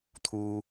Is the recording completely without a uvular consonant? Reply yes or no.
yes